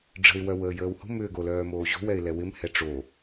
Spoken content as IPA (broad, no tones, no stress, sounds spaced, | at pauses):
ɖ͡ʐ ə̤ ɪ̯ w œ w əː j əː w h o̤ m ʏː ɡ o l œː m oː ʑ o̤ w ɛ ɪ̯ l ɛ w ɪ m h ɛ ʈ͡ʂ o